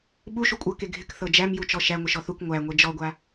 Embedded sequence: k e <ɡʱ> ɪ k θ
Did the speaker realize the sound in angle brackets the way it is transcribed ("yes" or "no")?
yes